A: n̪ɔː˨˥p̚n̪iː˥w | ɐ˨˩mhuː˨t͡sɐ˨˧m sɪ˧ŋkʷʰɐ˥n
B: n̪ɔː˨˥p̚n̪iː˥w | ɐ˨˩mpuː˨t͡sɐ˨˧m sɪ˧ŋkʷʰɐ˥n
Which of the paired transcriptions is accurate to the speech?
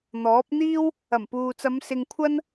B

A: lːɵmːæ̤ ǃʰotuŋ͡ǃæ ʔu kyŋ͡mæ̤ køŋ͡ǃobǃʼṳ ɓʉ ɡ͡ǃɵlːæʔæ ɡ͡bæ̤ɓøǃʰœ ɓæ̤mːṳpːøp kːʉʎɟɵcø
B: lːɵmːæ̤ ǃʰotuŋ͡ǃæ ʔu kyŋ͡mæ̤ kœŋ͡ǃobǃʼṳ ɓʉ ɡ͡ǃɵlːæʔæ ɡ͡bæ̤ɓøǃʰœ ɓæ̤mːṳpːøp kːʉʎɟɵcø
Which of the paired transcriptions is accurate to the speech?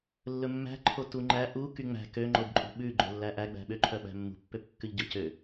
A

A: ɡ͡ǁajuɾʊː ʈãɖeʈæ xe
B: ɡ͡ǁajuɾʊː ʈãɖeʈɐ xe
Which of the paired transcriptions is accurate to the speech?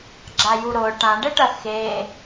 B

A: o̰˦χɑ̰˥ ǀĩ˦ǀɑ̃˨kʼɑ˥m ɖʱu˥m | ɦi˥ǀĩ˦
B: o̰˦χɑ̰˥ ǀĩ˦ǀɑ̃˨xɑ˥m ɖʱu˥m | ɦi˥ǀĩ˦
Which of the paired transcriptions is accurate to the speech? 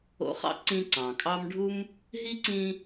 A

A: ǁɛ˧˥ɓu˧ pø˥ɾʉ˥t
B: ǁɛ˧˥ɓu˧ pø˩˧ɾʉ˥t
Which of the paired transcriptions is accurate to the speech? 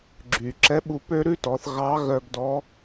A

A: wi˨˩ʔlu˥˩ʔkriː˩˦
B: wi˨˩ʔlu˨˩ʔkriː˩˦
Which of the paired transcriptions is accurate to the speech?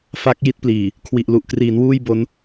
B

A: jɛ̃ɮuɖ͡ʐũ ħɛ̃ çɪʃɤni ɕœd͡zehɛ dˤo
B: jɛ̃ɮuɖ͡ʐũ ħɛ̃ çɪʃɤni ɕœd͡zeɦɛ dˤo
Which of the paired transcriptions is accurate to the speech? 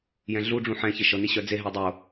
B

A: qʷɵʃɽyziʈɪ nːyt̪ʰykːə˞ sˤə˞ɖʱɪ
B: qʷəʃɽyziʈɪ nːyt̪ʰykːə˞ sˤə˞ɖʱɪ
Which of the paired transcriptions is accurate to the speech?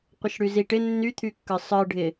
B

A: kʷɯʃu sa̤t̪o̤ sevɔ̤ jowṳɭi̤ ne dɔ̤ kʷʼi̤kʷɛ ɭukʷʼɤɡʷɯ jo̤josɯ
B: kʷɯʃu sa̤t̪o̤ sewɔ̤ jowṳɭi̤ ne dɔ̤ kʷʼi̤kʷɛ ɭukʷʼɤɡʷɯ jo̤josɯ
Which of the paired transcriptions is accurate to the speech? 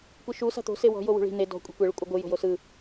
B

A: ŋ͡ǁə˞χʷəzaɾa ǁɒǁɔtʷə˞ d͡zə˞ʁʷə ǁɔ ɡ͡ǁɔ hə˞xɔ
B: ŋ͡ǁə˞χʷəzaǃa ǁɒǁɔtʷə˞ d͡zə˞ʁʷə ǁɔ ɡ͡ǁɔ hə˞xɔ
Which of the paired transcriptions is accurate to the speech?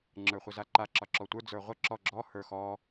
B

